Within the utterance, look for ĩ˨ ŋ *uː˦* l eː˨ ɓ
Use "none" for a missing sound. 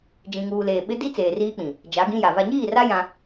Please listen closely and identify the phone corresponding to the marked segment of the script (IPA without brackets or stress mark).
uː˨